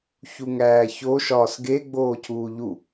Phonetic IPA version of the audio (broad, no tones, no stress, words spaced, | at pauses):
çuŋæːço ʃɒːsɡe ɡ͡boːcʰuːʎu